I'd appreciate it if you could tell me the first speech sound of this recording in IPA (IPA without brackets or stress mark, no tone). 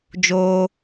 d͡ʒ